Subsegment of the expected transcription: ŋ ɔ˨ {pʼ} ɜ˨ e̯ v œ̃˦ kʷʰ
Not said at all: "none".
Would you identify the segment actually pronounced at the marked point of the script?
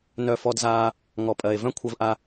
pʼ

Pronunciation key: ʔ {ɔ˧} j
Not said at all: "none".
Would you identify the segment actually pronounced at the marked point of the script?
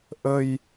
ə˧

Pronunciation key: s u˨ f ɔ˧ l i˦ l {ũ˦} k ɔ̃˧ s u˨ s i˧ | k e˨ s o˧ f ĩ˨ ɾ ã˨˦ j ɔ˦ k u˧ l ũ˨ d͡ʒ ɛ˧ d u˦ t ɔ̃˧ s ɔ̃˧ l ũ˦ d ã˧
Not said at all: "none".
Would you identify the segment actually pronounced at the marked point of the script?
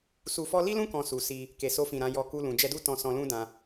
ũ˦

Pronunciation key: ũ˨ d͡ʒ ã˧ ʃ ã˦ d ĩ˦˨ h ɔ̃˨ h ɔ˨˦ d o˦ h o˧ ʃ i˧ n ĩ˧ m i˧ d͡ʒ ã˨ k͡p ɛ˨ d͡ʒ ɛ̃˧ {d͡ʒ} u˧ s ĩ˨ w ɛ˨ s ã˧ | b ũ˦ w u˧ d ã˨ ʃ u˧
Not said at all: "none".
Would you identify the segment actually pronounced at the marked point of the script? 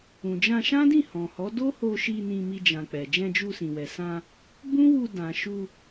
d͡ʒ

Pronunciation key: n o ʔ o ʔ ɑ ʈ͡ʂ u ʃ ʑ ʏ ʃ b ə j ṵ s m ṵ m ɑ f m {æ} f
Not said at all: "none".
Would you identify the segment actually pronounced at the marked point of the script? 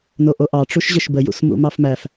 æ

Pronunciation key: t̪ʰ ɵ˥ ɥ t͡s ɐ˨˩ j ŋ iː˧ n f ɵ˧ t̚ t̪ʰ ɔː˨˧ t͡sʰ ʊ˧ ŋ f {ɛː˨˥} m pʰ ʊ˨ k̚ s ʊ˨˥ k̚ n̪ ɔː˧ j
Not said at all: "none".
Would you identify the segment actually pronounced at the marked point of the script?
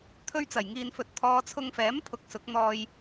ɛː˨˥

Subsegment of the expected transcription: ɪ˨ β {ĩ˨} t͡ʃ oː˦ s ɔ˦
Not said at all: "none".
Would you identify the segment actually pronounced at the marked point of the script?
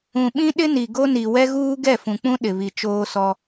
i˨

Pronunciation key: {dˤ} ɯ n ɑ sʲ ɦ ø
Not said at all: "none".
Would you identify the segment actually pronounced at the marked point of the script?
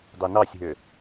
dˤ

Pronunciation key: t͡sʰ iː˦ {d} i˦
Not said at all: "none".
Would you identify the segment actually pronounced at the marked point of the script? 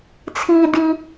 d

